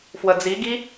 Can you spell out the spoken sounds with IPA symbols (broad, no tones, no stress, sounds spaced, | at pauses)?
f w ə d͡z i ɡ i